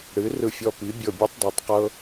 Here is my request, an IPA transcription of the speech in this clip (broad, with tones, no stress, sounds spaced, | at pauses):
ɽ ɨ˩˥ r ɯ˧˩ fʲ ɔ˧˩ p i˩˥ bʲ ɤ˧˩ bʲ ɯ˦˥ tˤ dˤ e˩˥ tˤ q ɤ˦˥